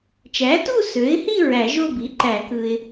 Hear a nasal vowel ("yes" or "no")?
no